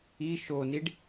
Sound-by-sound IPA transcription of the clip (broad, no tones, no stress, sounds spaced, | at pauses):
i ʃ o n i ɖ